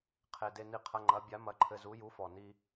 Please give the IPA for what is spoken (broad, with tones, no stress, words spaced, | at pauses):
qʰe˨˩de˧ni˧qʰɐ˧˥˧ ŋ͡ǃɐ˨˥ bʲa˨˥mɐ˨˥ǃʰɘ˧zu˨˥ ju˨˥fɔ˨˩ni˧